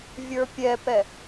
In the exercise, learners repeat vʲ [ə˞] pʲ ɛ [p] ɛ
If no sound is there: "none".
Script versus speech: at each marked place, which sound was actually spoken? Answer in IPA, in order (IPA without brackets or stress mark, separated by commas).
ə˞, p